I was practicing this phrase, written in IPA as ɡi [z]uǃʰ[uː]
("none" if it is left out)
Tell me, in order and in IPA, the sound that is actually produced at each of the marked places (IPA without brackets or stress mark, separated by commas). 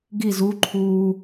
z, uː